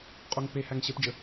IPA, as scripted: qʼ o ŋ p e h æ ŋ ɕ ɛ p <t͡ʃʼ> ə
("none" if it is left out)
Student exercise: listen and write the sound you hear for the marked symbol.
d͡ʒ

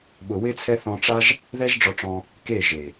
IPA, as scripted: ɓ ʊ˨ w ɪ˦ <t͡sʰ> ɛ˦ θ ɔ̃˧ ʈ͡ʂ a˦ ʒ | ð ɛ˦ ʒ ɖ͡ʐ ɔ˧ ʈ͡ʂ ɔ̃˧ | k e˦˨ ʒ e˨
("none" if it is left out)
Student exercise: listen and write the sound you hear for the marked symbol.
t͡sʰ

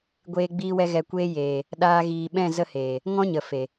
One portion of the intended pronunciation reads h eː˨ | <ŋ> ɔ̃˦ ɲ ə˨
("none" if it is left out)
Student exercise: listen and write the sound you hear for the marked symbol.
ŋ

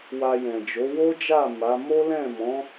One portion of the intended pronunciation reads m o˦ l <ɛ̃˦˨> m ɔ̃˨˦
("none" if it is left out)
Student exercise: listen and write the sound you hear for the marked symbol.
ɛ̃˦˨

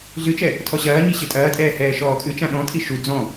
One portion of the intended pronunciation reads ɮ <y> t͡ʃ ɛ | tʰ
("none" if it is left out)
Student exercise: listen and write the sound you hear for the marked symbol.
ɨ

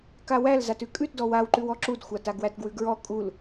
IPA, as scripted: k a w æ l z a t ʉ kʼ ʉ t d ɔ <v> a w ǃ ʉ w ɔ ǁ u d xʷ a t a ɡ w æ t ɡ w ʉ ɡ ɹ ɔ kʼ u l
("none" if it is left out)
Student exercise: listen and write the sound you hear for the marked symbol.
w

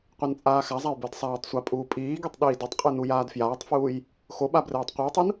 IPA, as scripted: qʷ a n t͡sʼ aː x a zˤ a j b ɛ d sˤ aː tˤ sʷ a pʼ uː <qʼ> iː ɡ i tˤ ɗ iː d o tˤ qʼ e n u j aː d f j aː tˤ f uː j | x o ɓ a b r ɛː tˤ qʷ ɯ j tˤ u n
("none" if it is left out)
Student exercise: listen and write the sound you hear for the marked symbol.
pʼ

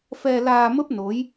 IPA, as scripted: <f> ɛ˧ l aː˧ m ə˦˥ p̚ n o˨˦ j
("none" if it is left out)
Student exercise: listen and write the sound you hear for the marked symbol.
f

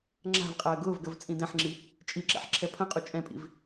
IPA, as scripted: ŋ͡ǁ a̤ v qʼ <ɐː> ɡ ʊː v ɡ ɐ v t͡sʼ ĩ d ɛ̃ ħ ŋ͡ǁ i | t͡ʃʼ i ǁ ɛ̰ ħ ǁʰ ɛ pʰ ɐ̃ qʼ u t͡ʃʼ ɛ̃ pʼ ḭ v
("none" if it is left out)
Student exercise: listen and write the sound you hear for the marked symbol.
ɐː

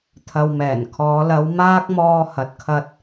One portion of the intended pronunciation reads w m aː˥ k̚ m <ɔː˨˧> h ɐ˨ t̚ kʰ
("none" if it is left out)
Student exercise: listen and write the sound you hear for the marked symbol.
ɔː˧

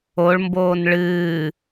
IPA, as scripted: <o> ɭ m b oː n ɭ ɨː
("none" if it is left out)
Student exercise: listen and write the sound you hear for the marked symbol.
o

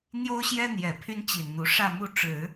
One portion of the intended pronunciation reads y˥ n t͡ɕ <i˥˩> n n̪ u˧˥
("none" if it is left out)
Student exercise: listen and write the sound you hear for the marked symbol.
i˨˩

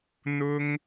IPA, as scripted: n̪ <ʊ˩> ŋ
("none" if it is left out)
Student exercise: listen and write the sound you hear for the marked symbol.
ʊ˥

